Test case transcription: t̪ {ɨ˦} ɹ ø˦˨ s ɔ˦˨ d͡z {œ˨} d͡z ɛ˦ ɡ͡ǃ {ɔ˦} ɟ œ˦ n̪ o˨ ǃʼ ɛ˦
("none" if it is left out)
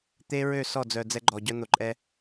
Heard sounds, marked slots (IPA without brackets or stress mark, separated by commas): e˦, œ˨, ɔ˨